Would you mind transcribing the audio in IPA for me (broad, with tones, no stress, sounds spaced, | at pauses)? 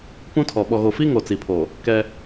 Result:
p ũ˦ tʰ ɔ˨ ɓ ɔ˨ ɣ o˨ f i˦ ŋ o˨ t͡s i˨ pʰ o˨ | k ɛ˦